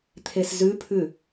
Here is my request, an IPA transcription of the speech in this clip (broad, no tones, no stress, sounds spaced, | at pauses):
t̪ʰ e s z ʉ pʰ ʉ